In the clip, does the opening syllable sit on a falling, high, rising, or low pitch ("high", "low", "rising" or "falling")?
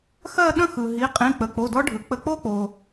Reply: falling